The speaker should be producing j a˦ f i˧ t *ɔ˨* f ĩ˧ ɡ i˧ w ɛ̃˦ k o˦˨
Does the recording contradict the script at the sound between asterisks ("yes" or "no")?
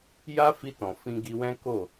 yes